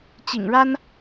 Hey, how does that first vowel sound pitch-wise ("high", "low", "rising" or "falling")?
low